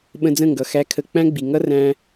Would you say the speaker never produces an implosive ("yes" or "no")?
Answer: no